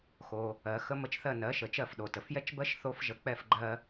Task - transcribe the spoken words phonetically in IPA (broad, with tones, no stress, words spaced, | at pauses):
xo˩ | ɜ˩xə˧ mə˧t͡ʃθɜ˥˩nɜ˩˥ʃə˩ t͡ʃɜ˥˩fɗo˩tə˩f jɛ˥t͡ʃbɜ˥ʃ θo˥fʒə˧ k͡pɛ˥˩fɡ͡ǃɜ˧